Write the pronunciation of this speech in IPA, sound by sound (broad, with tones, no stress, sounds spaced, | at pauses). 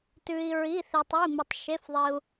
t ʉ˧ i̯ ɹ i˧˥˧ θ i˧ tˤ i˧˥˧ m ɨ˧ tˤ ʃ e˧˥˧ f ðˤ i˧ u̯